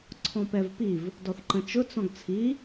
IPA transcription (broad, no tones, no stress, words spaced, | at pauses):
ǀʰɔ̃pɛvpiv | dɔθǃə̃t͡ʃʊ t͡sɔ̃ɡt͡sʰi